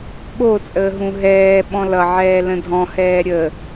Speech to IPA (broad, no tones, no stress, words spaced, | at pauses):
ɓot͡sʼəːɦũ ɦɛː ɓɔ̃lʌ ʕɛːlə̃dʱɔ̃ hɛːɾʲə